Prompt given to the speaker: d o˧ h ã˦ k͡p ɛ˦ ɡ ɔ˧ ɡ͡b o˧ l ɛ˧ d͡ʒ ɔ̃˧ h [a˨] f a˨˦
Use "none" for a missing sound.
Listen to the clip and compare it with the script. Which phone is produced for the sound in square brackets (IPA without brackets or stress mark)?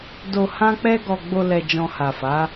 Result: a˨